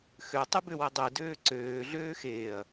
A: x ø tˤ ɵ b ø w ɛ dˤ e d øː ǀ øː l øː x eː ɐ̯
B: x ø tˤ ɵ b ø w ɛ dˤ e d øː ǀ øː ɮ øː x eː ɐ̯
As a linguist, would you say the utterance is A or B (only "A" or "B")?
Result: B